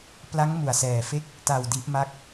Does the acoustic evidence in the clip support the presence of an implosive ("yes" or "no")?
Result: no